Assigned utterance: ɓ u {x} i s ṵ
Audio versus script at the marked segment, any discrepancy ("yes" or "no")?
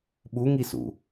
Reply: yes